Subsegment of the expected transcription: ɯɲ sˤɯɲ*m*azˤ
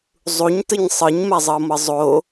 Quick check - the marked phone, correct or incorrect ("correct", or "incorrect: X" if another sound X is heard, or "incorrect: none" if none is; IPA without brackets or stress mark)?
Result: correct